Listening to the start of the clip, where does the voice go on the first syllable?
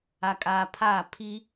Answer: low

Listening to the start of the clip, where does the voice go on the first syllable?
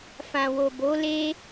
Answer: low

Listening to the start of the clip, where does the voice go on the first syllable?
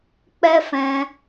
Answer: high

